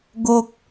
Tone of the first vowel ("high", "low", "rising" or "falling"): low